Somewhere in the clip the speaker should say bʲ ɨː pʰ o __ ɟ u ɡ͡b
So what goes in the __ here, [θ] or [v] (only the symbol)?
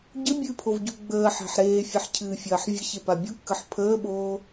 v